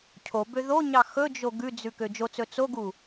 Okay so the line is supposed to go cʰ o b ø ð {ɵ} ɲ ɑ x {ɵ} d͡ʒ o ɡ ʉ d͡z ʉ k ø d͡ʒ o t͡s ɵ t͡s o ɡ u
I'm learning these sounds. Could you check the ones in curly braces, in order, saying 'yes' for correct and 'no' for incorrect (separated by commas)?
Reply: no, yes